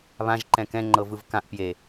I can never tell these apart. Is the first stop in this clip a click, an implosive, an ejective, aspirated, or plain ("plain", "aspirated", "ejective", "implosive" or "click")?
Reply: click